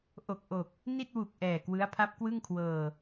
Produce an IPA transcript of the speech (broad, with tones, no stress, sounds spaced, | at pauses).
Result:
ʔ o˨˩ k̚ ʔ o˨˩ k̚ | n i˥˩ t̚ w u˨˩ k̚ ʔ ɛː˨˩ k w ɯ˦˥ a̯ pʰ a˦˥ p̚ k w ɯ˥˩ ŋ kʰ w ɤː˧